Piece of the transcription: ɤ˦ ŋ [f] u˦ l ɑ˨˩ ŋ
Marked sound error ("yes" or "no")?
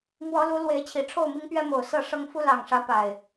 no